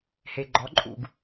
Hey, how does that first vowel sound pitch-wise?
low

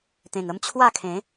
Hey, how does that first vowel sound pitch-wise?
low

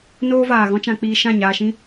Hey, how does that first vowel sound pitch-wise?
high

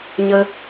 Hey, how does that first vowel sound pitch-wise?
high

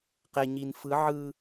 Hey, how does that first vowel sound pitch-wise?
low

